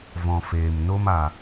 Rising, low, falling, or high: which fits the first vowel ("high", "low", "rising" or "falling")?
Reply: low